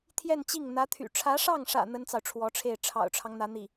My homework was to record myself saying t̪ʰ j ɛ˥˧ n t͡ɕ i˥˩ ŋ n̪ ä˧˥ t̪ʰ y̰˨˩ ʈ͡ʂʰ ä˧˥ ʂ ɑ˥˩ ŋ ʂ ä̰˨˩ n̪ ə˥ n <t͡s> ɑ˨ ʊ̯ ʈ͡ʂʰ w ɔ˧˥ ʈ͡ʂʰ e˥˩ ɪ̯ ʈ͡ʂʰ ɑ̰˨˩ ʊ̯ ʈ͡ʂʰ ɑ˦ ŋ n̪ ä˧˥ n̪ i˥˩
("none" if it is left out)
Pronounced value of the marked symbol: t͡s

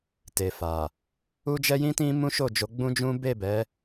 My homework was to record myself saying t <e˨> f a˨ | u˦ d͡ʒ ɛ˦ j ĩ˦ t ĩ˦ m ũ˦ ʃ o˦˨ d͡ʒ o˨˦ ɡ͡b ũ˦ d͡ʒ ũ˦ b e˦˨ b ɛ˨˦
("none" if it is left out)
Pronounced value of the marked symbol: e˨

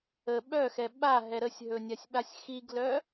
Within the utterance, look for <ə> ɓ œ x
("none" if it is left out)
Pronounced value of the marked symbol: ə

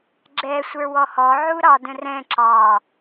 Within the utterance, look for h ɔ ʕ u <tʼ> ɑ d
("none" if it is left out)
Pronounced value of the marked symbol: ɾ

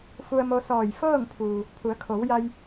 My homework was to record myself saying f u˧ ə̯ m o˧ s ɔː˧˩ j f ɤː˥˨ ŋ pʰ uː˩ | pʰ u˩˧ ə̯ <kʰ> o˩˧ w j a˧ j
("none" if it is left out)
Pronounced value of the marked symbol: kʰ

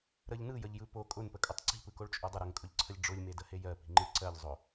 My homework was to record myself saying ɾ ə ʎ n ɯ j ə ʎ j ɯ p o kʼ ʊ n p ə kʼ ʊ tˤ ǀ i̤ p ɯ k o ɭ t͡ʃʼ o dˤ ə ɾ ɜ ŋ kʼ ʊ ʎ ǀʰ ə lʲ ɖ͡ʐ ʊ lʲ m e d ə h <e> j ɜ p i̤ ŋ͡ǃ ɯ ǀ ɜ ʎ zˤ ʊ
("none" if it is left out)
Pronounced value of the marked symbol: e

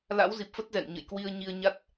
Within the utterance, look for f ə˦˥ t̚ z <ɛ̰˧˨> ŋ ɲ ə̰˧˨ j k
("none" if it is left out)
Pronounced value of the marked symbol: ɛ̰˧˨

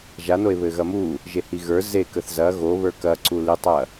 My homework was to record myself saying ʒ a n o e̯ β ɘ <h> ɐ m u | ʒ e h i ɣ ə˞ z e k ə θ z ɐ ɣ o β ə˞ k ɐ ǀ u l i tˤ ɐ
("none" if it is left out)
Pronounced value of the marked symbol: ɣ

